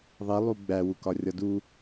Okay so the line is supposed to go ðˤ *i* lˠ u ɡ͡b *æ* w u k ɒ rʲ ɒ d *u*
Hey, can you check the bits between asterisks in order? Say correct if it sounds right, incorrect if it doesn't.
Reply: correct, correct, correct

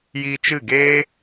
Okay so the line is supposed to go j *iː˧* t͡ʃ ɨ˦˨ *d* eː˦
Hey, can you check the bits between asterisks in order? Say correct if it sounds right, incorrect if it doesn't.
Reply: correct, incorrect

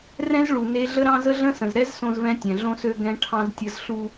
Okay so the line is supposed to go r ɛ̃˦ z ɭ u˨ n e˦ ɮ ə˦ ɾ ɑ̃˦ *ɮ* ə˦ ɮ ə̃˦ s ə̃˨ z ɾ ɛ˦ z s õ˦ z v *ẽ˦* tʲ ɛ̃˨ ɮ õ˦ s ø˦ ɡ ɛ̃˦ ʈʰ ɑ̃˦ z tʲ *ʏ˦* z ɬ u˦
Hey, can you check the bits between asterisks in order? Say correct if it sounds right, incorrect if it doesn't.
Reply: incorrect, incorrect, incorrect

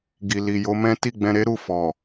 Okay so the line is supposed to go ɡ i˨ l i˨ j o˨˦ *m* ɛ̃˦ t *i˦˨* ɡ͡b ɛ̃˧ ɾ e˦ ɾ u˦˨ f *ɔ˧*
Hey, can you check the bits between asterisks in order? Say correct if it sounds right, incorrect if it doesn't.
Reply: correct, correct, incorrect

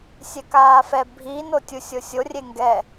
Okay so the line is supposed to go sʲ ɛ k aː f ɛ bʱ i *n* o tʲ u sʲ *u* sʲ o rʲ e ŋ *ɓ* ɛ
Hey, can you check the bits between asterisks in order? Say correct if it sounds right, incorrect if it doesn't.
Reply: correct, incorrect, incorrect

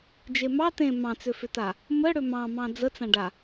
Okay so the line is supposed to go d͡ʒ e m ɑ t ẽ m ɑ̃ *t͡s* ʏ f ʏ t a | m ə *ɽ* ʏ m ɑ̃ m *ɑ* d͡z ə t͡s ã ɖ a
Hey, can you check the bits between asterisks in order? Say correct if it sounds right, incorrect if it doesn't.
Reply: correct, correct, incorrect

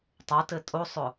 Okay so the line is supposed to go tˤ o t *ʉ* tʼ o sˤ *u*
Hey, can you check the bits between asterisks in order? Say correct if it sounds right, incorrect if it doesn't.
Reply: incorrect, incorrect

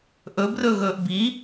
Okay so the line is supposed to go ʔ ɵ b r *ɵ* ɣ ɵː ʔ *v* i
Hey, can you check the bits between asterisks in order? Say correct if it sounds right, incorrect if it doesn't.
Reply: correct, incorrect

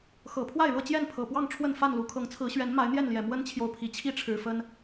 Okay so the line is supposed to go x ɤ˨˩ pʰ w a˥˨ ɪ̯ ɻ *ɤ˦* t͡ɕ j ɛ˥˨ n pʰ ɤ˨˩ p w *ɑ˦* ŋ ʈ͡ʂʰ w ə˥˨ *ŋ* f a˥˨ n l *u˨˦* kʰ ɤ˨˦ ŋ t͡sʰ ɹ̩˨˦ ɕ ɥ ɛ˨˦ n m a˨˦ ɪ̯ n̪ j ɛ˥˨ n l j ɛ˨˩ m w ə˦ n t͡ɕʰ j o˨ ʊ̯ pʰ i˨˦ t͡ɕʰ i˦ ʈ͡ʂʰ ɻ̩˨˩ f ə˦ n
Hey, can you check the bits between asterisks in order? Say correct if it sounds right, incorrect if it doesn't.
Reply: incorrect, incorrect, incorrect, correct

